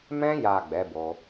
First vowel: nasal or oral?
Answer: nasal